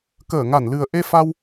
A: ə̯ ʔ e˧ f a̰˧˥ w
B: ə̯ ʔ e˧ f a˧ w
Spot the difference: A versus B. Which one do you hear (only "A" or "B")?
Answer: B